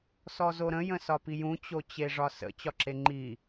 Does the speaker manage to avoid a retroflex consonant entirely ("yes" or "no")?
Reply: no